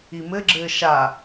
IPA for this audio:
i m ɘ ɡ͡ǁ ɘː ʃ a

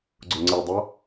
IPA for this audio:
ɡ͡ǀ ʊ ŋ͡ǀ i dˤ ʌ

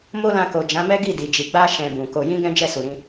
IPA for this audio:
m o˦ l ã˧ k o˨ d͡ʒ ã˨˦ m ɛ˦ ɡ i˦˨ d i˨ d͡ʒ i˨ ɡ͡b a˧ ʃ ɛ̃˨ b ũ˨ k o˧ j ĩ˦ ɡ ɛ̃˦ d͡ʒ ɛ˦˨ s u˨ ɾ ĩ˧

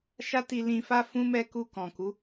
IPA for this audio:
ʃ a˦ t i˧ l ĩ˧ f a˦ f ũ˦ m ɛ˦ k u˧ k ɔ̃˨ k u˨˦

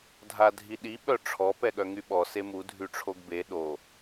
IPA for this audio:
dʱ a dʱ i ɗ i ɓ œ ʈ͡ʂʰ ɔ p ɛ ɠ œ ŋ y ɓ ɔ s e m u dʱ y ʈ͡ʂʰ o ɡ b e ɗ o

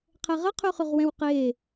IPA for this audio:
qʰ ɛ ʁ ə qʰ y χ y ʁ w ɛ̃ w q e

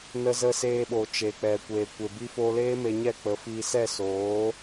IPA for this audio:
n ə˧ z ə˧ s eː˧ ɓ o˨ t͡ʃ e˨ k͡p ɛ˨ kʷ eː˨ kʷ e˨ b i˦ f o˧ l eː˦ m e˧ ɲ ɛ˦˨ k͡p ə˨˦ f iː˧ s ɛ˦˨ s oː˨˦

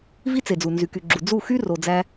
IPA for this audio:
v i˦ t͡s e˨ d͡z u˨ n z y˨ k y˨ ɡ͡ǁ u˨ d͡z u˦˨ x y˦ r o˧ d͡z æ˦

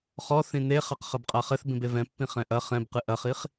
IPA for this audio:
χ ɔ θ ĩ n e χ a q χ ɐ b qʼ a χ ɘ θ b ĩ b e v ɛ̃ pː ĩ χ ɛ̃ ʔ ɐ χ ɛ̃ b q ɨ ʔ ɐ χ i χ

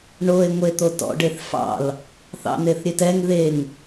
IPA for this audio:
ɳ o e̯ ŋʷ e t̪ o t ɔ̰ ɖ e θ f ɑ̰ l | θ ɑ̰ n̪ e θ ɾʲ e t ɛ ŋ ð e ŋ

